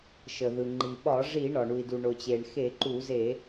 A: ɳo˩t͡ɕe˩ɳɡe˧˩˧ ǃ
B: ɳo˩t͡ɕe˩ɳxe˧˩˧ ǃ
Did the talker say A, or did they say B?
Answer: B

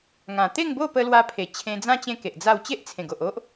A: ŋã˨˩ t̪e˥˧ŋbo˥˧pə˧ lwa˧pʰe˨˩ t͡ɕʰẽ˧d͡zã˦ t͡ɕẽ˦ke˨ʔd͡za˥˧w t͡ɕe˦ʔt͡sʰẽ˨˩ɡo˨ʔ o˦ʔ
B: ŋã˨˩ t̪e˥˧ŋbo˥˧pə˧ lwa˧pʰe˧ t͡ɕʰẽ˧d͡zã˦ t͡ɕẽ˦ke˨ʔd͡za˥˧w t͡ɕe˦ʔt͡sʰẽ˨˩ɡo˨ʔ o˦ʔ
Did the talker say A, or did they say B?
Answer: A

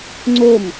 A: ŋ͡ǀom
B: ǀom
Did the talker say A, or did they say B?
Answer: A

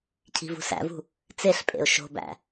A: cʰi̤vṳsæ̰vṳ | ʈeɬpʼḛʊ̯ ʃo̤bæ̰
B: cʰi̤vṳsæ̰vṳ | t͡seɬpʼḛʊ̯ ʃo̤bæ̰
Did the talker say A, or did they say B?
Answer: B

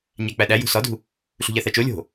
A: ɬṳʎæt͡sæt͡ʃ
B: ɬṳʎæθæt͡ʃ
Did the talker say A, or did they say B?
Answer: B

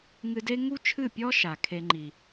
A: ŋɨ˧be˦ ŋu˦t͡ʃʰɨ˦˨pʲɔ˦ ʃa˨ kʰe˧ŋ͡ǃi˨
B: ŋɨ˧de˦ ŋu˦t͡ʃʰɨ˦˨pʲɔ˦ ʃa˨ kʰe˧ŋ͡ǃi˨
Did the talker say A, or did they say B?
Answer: B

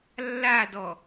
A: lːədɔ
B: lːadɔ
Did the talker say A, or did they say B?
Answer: B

